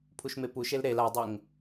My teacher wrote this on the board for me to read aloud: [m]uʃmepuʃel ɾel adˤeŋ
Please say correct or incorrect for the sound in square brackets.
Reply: incorrect: pʰ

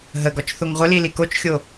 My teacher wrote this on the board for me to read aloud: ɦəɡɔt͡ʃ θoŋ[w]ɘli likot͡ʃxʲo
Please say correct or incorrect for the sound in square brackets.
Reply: incorrect: ʁʷ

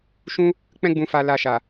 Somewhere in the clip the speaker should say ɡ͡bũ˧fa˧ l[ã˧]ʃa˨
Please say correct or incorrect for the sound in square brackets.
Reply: incorrect: a˧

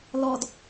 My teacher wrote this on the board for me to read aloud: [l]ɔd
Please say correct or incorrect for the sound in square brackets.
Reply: correct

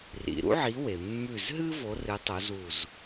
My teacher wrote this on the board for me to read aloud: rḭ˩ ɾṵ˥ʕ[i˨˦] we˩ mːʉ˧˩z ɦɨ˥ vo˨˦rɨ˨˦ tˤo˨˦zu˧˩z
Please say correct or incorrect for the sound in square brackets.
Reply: correct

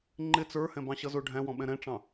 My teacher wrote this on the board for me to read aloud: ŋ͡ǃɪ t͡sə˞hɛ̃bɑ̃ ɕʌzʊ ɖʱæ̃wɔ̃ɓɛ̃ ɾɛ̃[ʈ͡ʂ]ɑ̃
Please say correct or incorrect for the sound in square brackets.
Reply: correct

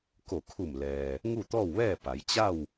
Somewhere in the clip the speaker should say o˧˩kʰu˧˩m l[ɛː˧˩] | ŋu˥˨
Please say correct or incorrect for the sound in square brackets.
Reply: incorrect: ɛː˩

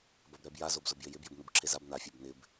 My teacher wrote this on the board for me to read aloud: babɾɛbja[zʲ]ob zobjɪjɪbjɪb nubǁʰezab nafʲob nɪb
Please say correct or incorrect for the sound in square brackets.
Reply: incorrect: z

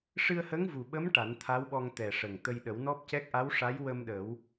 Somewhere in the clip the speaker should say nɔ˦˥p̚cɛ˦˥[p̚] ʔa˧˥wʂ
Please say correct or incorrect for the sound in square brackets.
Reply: incorrect: k̚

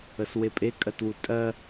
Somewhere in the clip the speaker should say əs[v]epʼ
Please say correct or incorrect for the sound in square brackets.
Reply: incorrect: w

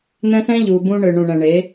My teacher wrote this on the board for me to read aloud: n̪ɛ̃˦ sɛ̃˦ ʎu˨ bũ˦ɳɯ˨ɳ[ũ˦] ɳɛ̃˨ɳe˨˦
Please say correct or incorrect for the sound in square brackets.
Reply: incorrect: ũ˨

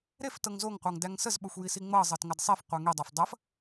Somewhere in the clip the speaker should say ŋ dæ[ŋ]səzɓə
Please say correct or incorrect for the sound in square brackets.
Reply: correct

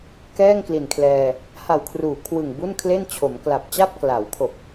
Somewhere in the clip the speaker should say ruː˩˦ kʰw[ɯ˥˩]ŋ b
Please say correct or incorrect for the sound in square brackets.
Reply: incorrect: ɯ˨˩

